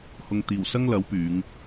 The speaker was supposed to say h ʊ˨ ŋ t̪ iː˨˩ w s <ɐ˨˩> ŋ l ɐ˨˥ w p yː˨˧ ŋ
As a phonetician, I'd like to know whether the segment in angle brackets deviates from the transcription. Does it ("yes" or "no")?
yes